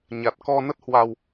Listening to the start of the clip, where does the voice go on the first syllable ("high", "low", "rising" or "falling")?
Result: low